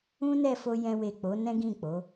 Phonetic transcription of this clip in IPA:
ũ˦ n ɛ˦˨ f o˧ j ɛ̃˦ w e˦˨ k͡p o˨˦ n ɛ̃˦ ɡ ĩ˦˨ k͡p o˨˦

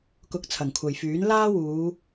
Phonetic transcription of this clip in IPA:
k ʊ˧ k̚ t͡sʰ ɐ˨˩ ŋ kʷʰ ɐ˨ j f yː˨˥ n l aː˥ w uː˨˧

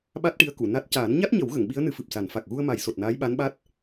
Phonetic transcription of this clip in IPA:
ɓ a˦˥ t̚ ʈ i˧˥ ə̯ k u˨˩˨ n a˦˥ t̚ c aː˨˩˦ n ɲ a˦˥ t̚ ɲ ə˨˩˦ w ɣ ə˨˩˨ ŋ ɓ i˧˥ ə̯ n ɨ˧˥ f ɨ˨˩ p̚ s a˨˩˦ n f a˨˩ k̚ ɣ u˧ ə̯ m a˨˩˦ j s o˨˩ t̚ n aː˧˥ j ɓ a˧˥ n ɓ a˦˥ t̚

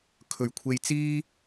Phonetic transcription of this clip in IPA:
kʰ ɵ˨˩ ɥ kʷʰ e˧ j t͡s iː˥

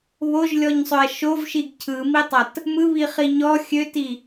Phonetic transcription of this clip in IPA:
β o ʒ lʲ ɔ ɲ sˤ ø ɐ̯ ʃ o v ʃ i ɡ cʰ ɯ m i tˤ ɐ t | m ɯ β i χ i ɲ ɔ xʲ ø t i

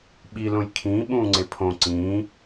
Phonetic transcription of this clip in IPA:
ɓ i l õ j kʰ ĩː ɓ ũː ŋ͡ǀ e pʰ õ ǀ ĩː

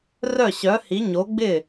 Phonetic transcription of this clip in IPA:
r œ˥˩ ɕ œ˨˥ h i˨˥ ɲ o˨˥ ɡ͡b ɪ˥˩

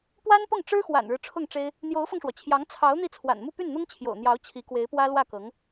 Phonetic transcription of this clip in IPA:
p w a˥ n p ʊ˥˩ ŋ ʈ͡ʂ ɻ̩˥ x w a̰˨˩ n ɻ ɻ̩˦ ʈ͡ʂʰ ʊ˥˩ ŋ ʈ͡ʂ e˥ ɪ̯ | n̪ j o˧˥ ʊ̯ f ɤ˧ ŋ ʂ w ɔ˩ t͡ɕʰ j ɑ˧˥ ŋ t͡sʰ ɑ˧˥ ʊ̯ n̪ i˥˩ t͡sʰ w a̰˨˩ n m u˥˧ p y˥˩ n n̪ ʊ˥ ŋ t͡ɕʰ j o̰˨˩ ʊ̯ n̪ j ɑ˧˥ ʊ̯ t͡ɕʰ i˧˥ k w e˧˥ ɪ̯ p w ä˥ l w ä˥˩ k ɤ˧˥ ŋ

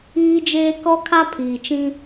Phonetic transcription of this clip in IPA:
iː˦ d͡ʒ eː˦ k ɔ˦ kʰ a˦ pʰ iː˨ t͡ʃ ĩ˦

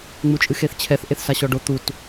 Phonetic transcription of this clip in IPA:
ŋ͡m u t͡ʃʼ ɨ x e θ t͡ɕʰ ɛ θ ʔ e θ s a ɕ ɔ ɖ o t̪ u t

